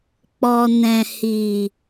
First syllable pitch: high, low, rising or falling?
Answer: low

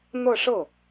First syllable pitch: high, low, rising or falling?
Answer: falling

